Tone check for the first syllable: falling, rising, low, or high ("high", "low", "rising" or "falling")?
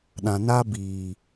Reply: low